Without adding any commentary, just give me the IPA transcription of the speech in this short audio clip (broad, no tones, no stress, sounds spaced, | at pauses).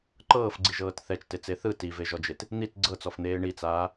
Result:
ǃ ɤː f ɡ͡ǀ i ʒ ɤː t θ ɛ t͡ʃ t e t͡s e θ ɯ t i v e ʒ ɔ d͡ʒ e t | n̪ i t ɡ͡ǀ ɤ t͡s ɔ f n̪ eː ɳ i t͡s aː